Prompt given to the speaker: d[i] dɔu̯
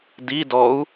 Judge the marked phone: correct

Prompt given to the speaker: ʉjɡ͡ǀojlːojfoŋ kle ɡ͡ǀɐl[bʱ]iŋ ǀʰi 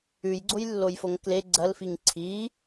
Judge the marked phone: incorrect: f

